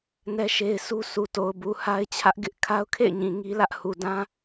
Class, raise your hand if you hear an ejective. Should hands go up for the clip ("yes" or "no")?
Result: no